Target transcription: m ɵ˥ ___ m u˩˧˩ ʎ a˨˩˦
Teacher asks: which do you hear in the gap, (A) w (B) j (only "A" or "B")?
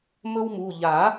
A